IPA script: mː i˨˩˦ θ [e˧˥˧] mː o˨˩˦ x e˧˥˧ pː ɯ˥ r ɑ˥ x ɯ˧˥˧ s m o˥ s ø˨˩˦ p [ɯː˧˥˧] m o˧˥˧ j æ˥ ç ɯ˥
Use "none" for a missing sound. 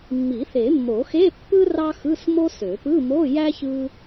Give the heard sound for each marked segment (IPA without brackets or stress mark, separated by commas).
e˨˩˦, ɯ˧˥˧